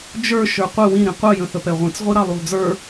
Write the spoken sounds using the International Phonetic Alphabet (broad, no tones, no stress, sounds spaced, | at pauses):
d͡ʒ ə˞ ʃ ə˞ qʷ ɪ w ĩ ɾ ĩ qʷ ʌ j ə̃ θ ə p ɛ ʁʷ ĩ t͡s ʁʷ i ɾ ɑ lˠ u lˠ d͡z ə˞